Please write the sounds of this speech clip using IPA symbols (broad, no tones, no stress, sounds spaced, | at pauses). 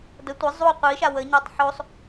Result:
d ə tʷ ə zˤ u qʷ i ʃ a w ə ɲ æ tˤ ħ o sˤ